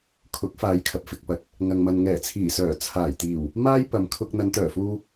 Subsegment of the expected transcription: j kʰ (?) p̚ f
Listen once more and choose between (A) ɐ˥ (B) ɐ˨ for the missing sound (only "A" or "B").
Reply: B